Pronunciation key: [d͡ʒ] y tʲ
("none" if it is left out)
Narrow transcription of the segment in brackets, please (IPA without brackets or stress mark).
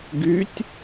ɡ